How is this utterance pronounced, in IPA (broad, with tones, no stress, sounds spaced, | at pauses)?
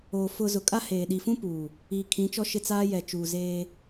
oː˨ f ʊ˨ z ʊ˨ kʼ a˦ h eː˨ ɗ i˨ f ũ˦ p uː˨ | iː˨ kʰ ĩ˨˦ t͡ʃ ɔ˦ ʃ ɪ˦˨ t͡s aː˦ j ɛ˨ t͡ʃ uː˨ z eː˦